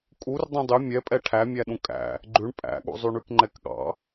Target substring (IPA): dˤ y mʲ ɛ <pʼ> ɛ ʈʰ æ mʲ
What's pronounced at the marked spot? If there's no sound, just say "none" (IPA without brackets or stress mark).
pʼ